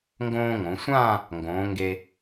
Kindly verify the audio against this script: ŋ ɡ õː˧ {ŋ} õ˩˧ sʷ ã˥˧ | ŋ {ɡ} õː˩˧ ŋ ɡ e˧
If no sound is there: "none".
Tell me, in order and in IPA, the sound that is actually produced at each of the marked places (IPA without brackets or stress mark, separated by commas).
ŋ, ɡ